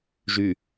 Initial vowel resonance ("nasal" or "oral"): oral